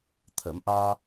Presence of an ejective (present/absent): absent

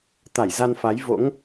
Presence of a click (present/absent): absent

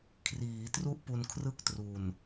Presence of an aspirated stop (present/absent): present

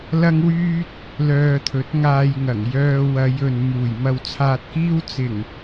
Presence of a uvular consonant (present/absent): absent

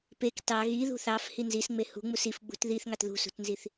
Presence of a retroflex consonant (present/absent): absent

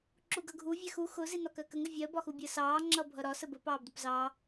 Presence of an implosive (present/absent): absent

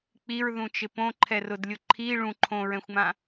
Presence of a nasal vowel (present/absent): present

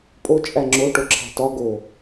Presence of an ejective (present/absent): present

